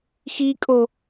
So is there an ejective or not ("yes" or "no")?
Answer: yes